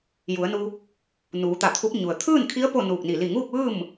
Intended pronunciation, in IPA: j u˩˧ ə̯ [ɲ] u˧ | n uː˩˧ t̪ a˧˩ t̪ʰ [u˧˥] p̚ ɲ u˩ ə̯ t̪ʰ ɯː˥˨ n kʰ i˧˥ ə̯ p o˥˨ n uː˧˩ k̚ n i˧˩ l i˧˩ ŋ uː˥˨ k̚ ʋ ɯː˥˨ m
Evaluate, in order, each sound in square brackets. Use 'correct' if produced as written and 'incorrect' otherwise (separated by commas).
incorrect, correct